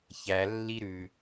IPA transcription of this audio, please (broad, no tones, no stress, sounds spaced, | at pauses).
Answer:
ç æ lː i ɾ ʉ